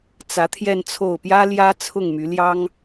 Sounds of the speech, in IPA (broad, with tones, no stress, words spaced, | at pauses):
t͡sä˧˥ t̪ʰjɛ˥˧nt͡sʰo˥˩ʊ̯ pjä˥ ljä˥ t͡sʰʊ˥˩ŋmy˧˥ljɑ˥ŋ